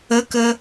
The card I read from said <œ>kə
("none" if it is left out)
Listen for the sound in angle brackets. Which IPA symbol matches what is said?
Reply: ə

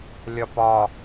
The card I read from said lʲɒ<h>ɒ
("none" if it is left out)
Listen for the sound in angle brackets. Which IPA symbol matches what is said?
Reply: p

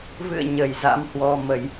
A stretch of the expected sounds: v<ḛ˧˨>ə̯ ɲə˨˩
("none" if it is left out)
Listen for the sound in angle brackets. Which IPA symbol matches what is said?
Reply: ɨ̰˧˨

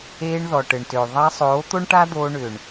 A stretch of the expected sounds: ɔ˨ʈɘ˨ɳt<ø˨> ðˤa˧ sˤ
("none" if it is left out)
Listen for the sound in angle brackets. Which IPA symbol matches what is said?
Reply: ø˨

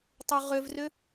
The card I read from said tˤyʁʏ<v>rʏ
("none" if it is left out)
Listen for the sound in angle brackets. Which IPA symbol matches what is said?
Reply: v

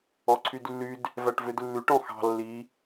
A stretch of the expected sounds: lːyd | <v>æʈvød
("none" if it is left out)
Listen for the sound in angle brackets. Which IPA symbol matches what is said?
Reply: v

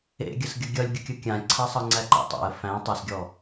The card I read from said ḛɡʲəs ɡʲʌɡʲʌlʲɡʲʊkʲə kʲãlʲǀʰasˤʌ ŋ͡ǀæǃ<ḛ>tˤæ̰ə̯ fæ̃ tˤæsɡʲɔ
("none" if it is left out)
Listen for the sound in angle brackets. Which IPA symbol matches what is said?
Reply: ḛ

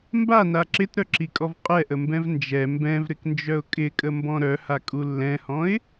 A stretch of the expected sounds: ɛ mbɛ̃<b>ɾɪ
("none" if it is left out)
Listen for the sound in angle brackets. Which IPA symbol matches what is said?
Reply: v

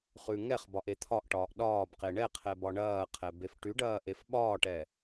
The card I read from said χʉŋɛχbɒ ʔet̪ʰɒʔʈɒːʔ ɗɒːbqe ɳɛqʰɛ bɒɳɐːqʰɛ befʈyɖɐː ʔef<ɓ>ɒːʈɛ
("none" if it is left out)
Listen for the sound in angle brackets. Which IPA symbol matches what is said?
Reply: ɓ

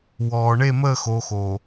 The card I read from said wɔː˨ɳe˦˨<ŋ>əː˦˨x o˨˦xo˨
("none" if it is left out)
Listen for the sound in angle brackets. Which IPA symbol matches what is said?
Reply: m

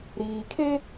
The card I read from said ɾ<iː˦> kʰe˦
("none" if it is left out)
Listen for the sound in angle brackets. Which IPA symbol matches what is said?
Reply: iː˨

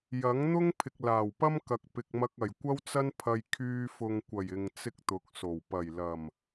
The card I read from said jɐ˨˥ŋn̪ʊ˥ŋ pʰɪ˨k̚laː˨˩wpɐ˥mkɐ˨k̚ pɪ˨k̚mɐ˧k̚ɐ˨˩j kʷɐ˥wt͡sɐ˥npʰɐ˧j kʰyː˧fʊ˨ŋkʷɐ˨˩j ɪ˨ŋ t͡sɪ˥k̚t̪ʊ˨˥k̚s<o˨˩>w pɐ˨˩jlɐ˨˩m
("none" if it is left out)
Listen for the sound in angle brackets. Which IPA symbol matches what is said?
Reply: o˨˩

